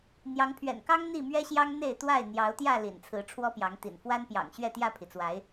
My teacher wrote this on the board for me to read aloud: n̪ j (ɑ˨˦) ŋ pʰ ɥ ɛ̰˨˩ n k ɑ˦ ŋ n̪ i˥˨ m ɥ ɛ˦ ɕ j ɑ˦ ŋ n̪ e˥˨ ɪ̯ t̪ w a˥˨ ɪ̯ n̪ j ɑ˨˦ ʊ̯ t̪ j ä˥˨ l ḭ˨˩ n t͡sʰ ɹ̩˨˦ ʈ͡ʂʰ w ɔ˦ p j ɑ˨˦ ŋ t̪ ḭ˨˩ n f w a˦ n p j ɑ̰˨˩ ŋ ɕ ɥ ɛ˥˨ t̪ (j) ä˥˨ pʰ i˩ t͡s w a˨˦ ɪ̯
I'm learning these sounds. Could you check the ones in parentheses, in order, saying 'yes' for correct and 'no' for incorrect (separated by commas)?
yes, yes